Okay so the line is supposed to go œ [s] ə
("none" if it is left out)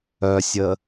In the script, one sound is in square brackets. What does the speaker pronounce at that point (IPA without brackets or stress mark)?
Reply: sʲ